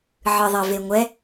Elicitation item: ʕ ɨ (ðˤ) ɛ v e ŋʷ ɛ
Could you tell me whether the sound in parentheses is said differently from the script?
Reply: no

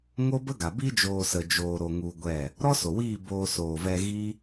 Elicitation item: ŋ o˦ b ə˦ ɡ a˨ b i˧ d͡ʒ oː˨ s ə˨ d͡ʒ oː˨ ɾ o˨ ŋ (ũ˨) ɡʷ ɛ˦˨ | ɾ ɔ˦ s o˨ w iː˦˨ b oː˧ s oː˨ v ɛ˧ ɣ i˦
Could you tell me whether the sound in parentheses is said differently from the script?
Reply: yes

